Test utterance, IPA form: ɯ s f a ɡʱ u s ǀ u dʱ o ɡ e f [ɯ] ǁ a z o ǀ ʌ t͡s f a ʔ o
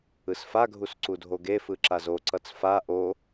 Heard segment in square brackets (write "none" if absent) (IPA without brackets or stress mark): ɯ